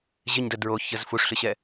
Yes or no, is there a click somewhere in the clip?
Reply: no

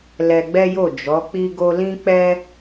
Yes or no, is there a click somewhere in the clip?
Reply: no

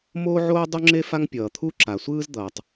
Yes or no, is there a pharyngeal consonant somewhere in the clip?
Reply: yes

